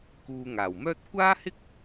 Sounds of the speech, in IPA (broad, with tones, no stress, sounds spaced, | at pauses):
k uː˨ ŋ aː˨˩ w m œː˥ t̚ kʷ aː˥ h ɪ˥ k̚